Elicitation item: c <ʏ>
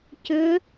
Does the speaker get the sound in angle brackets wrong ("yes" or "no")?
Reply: no